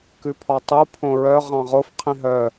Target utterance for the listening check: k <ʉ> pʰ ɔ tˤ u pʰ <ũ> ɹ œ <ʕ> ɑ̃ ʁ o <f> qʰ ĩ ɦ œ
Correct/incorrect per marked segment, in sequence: correct, incorrect, incorrect, correct

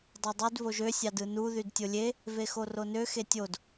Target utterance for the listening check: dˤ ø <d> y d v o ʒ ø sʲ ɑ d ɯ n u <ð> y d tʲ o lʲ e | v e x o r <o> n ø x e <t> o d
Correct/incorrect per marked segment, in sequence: incorrect, correct, correct, incorrect

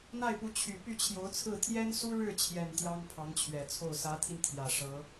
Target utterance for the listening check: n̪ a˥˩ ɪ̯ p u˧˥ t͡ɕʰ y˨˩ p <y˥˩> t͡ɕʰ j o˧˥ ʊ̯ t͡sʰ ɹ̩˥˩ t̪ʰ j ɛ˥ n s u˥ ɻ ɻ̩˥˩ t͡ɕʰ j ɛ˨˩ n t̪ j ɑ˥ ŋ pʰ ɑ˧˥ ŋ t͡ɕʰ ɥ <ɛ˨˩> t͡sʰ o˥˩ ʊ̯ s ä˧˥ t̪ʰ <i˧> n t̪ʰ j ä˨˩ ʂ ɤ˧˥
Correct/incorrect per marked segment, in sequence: correct, correct, correct

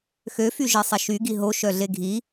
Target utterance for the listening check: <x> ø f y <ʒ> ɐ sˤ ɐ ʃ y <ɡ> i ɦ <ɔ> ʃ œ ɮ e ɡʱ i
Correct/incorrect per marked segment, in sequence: correct, correct, correct, incorrect

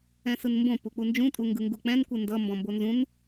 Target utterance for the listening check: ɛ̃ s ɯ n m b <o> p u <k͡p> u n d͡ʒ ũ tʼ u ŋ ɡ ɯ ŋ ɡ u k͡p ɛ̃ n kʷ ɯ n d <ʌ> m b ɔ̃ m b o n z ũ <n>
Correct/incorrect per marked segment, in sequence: incorrect, correct, correct, correct

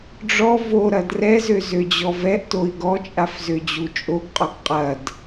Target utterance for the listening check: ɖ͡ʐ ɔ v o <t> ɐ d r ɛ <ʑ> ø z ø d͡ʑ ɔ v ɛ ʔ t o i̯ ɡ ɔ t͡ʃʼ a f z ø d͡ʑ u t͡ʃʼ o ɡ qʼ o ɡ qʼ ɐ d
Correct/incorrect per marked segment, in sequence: incorrect, incorrect

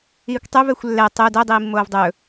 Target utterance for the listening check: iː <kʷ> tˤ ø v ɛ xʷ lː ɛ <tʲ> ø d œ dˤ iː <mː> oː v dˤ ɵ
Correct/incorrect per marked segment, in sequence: correct, incorrect, correct

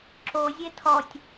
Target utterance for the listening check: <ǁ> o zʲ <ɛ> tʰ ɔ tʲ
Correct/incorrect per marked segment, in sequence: correct, incorrect

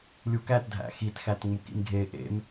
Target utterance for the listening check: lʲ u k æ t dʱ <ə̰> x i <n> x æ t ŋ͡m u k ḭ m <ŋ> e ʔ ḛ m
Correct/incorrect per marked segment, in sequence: incorrect, incorrect, incorrect

